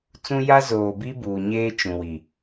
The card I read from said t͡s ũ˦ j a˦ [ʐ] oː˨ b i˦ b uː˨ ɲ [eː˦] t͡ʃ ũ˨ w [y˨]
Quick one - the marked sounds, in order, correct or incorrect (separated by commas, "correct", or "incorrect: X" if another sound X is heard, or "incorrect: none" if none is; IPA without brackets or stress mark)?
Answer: incorrect: z, correct, incorrect: i˨